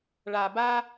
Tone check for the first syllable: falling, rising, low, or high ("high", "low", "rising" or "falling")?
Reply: low